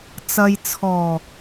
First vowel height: low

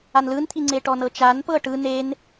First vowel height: low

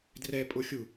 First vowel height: mid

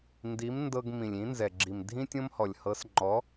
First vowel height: high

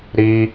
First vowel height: high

